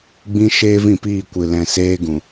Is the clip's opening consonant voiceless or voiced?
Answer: voiced